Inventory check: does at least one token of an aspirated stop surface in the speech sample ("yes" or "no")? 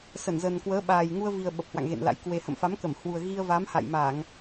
no